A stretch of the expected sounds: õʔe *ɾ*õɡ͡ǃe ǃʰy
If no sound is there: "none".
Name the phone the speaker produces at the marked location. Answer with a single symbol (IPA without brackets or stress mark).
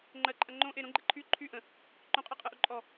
ɾ